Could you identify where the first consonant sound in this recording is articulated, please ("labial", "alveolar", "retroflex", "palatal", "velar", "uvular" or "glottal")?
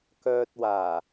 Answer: velar